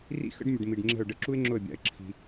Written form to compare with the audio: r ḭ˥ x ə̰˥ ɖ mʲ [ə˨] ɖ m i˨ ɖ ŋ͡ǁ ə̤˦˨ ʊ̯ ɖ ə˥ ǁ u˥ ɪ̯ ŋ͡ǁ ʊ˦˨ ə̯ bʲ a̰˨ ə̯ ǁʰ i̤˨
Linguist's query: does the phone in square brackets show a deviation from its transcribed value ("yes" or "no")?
no